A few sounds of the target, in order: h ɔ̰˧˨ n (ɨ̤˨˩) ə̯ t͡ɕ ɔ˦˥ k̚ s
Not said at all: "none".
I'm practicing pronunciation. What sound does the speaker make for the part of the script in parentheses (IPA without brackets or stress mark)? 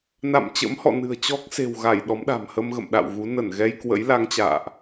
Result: ɨ̤˨˩